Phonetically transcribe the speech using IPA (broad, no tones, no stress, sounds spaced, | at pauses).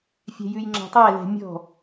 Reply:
fʲ ɛ̤ j ʉ j ŋ͡ǁ ɑ̤ tˤ æ l ɛ̤ mʲ ɔ̤